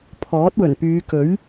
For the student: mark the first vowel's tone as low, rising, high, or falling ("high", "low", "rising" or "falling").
rising